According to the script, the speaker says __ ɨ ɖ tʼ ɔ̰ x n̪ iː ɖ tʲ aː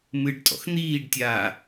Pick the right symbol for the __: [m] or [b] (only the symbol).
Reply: m